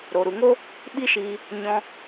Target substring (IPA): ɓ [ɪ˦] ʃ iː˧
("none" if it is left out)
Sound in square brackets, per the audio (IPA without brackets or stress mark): i˦